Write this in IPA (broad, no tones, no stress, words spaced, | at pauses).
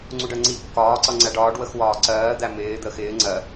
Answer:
ŋ͡ǀuɖɜŋ͡ǀi kːɒː ǀʌŋ͡ǀæɖɒːɖ wəxwɒːǀɜː d̪æmɪː d̪əːxɪː ŋ͡ǀɜ